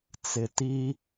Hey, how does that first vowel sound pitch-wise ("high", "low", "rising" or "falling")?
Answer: low